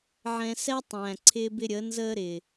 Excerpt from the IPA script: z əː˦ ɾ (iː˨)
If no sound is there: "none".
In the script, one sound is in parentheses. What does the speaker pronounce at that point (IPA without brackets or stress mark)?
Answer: ɪː˨